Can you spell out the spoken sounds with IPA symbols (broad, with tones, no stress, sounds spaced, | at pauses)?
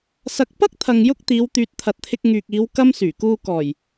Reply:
s ɐ˧ k̚ p ɐ˥ k̚ t̪ʰ ɐ˨ ŋ j ʊ˧ k̚ t̪ iː˨˧ w t̪ yː˨ t̚ t̪ʰ ɐ˨ t̚ t̪ʰ ɪ˧ k̚ ŋ yː˨ k̚ iː˨˧ w k ɐ˥ m s yː˨˩ k uː˧ k ɔː˨˩ j